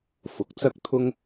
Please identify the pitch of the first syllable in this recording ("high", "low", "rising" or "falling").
rising